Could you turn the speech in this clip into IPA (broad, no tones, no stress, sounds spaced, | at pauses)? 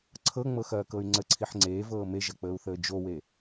ǀʰ ɤ ŋ͡m ɤ x ɐː k ɤ y̯ ŋ͡ǀ ə ǀʰ i ħ ŋ͡ǀ eː v ɤː m e ʒ ɐ k͡p əː u̯ θ əː d͡ʒ o w e